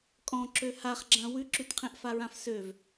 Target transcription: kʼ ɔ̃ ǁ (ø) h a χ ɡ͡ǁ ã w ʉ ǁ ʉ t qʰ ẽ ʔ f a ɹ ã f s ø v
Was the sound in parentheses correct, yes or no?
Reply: yes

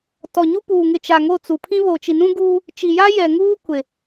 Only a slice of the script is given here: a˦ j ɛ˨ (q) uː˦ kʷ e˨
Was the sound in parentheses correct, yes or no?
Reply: no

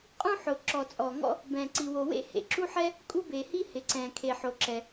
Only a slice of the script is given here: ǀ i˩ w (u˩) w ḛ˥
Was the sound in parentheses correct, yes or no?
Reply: no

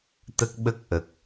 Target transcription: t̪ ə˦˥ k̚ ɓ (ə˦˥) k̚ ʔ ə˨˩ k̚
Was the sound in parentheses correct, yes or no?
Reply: yes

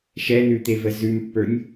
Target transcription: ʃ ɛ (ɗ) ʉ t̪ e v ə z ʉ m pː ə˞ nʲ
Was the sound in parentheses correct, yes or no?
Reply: no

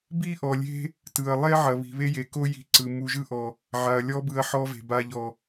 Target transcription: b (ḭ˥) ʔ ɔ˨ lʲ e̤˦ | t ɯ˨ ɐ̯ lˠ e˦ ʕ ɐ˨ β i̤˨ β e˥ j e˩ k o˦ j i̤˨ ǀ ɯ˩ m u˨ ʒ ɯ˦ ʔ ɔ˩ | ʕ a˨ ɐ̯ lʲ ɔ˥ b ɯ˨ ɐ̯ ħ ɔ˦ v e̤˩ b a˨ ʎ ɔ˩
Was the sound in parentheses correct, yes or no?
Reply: no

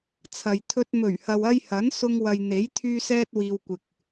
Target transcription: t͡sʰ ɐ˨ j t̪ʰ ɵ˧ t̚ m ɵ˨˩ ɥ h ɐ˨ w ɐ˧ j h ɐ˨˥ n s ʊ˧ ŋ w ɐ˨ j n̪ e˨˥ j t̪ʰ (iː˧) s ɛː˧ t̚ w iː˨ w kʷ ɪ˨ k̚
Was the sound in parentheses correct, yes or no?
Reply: no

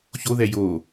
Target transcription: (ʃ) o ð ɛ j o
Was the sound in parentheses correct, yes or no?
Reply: no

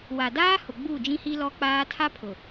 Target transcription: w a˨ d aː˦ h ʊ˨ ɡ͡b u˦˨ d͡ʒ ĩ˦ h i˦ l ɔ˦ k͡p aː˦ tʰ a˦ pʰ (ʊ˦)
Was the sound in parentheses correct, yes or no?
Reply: no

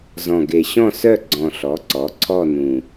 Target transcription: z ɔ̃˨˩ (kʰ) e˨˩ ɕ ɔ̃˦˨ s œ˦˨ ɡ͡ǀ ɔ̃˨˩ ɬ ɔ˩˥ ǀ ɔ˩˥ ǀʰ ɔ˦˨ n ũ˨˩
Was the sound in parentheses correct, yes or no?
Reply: no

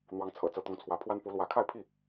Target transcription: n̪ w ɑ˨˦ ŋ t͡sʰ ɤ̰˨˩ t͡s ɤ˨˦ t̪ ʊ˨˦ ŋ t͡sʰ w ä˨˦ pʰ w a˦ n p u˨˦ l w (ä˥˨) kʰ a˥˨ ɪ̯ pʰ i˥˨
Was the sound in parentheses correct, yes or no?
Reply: no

